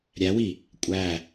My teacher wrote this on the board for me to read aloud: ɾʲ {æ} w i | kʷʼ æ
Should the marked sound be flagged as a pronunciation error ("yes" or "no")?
no